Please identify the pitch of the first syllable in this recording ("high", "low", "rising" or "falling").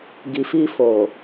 low